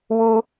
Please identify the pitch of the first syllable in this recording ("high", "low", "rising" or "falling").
high